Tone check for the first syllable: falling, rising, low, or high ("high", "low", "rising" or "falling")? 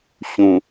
low